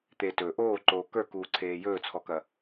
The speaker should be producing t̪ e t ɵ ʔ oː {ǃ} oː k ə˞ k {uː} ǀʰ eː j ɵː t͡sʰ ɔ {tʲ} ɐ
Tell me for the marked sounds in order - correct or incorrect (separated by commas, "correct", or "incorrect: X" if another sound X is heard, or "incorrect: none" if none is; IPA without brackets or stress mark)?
correct, correct, incorrect: k